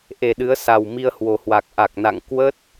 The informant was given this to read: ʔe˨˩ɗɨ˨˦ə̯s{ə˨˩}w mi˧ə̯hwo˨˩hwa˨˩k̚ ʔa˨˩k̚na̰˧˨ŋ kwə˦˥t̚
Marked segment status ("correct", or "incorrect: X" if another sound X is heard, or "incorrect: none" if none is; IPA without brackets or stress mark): incorrect: a˨˩